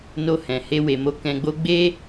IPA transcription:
n o˧ h ɛ̃˨ h e˧ w e˨ m o˧ k ɛ̃˧ ɡ͡b o˦ ɡ͡b e˦

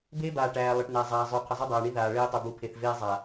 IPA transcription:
b eː˦ b aː˨ ʈ æː˨ lˠ ə˨ ʈ n æ˨ zˤ aː˨ zˤ y˨ qʰ ə˨ zˤ y˦ dˤ aː˨ ɳ i˦ ð aː˨ ɭ eː˦ tˤ y˨ b u˨ pʰ e˨ θ v eː˦ zˤ a˨

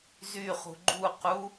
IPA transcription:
z y χ ṳ ɡ͡ǃ u q u

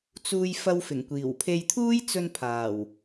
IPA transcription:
t͡s uː˧ j f ɐ˧ w f ɪ˨˩ ŋ kʷ iː˨˩ w pʰ e˧ j t̪ʰ uː˥ j t͡s ɵ˧ n pʰ aː˨˩ w

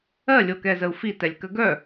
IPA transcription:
ɜ lʲ o k ɛ z ə u̯ f i t ɛ lʲ k ə ɡ œ

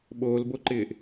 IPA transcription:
ɓ oː l b o ǃ ɪː ʔ

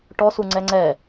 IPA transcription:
ʈ ɔ s u ŋ͡ǀ ɛ ŋ͡ǀ ɛ

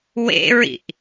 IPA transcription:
w ḛ ɹ ḭ ʔ

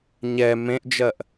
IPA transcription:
ɲ ɛ m ẽ ʔ d͡ʒ ɜ ʔ

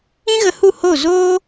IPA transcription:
ĩ˦ ɣ ə˧ h u˦˨ h o˦˨ z oː˦

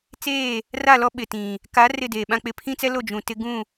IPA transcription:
t͡s eː˦˨ | r a˦˨ l ɔ˦ ɓ ɪ˨ t ĩ˨ | k a˨˦ r ɪ˦˨ d eː˨ ɓ ã˦ k͡p ɪ˦ pʰ ĩ˦ t͡s ɛ˦ l o˦˨ d͡ʒ ũ˨ t ɪ˦ ɡ ũ˦˨

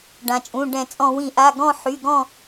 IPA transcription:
ɖ ã˩ t͡ʃʼ ũ˩˧˩ ɖ ɛ̃˧˩˧ t͡sʼ ɔ̃˧˩˧ w ĩ˧˩˧ ʔ a˩˧˩ ɡ ɔ̃˦˨ ħ y˩˧˩ ɡ ɔ̃˦˨

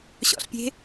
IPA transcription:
ɕ ɔ̰ ɬ pʲ e̤

